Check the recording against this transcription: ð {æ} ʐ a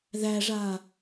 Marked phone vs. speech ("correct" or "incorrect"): correct